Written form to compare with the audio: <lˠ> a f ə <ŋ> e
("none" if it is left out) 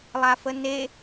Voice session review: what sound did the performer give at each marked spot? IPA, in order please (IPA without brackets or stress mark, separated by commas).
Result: lˠ, n